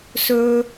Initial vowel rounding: rounded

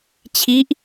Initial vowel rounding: unrounded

